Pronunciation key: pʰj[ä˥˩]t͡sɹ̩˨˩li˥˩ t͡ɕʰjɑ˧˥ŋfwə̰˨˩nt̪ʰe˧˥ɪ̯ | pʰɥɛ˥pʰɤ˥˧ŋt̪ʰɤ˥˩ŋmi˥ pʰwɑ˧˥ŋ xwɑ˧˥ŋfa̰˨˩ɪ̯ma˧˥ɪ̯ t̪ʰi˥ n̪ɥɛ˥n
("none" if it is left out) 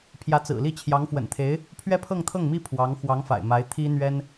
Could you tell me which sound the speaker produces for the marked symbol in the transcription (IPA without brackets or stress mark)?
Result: ä˧˥